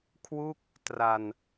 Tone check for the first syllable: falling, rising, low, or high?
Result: falling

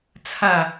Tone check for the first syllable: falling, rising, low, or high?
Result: falling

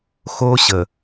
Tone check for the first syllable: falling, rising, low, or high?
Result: high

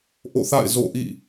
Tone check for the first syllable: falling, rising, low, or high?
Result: falling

